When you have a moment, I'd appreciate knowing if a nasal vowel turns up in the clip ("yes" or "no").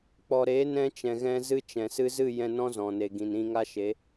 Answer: yes